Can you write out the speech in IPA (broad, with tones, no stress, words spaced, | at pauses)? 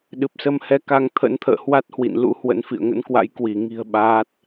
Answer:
ɗɨ˨˩p̚sə˧mhɛ˨˦ ka˧ŋ t̪ʰə̰˧˥n t̪ʰə̰ː˧˨hwa˦˥t̚hwḭ˧˨n lṵ˧˥hwə̰˧˥n fḭ˧˨ə̯ŋə̰˧˥nkwa̰˧˥j kwi˧˩ ŋi̤˨˩ə̯ ɓaː˦˥t̚